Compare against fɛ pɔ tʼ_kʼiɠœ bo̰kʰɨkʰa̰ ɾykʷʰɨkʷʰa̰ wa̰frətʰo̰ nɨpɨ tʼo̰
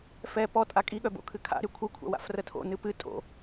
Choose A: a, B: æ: A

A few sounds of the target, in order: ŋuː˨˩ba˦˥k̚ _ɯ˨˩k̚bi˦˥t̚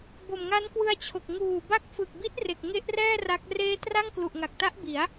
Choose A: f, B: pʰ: A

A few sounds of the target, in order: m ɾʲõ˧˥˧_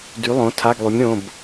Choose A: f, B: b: B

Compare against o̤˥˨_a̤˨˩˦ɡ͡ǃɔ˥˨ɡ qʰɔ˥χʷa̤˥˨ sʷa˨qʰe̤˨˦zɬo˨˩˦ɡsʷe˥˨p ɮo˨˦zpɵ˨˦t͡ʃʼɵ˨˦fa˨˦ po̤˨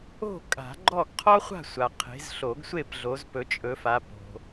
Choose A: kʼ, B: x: A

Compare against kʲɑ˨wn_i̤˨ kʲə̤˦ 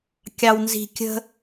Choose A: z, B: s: A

